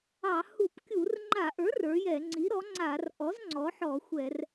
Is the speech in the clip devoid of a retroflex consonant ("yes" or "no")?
yes